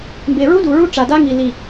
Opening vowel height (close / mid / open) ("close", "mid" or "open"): mid